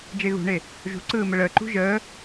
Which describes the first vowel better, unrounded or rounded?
unrounded